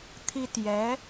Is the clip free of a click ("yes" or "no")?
yes